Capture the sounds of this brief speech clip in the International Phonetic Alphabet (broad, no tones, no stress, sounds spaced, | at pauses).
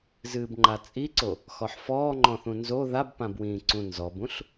z ɨː b ŋ͡ǃ a t͡sʼ i ǀ o | x ɔ ħ f ɔː ŋ͡ǃ ɔ̃ θ ũ n z o ð a b p ã b w ĩː ǀ ũ n z ɔ b ũ ɬ